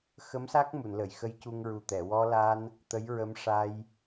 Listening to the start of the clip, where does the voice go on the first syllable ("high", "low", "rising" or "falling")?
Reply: rising